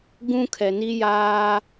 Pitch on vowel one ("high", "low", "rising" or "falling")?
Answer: high